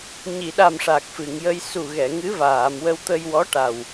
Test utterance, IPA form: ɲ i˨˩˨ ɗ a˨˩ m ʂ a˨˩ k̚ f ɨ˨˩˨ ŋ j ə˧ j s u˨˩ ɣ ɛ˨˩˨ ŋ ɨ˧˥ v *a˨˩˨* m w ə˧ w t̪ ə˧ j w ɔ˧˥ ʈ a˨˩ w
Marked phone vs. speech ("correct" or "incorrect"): incorrect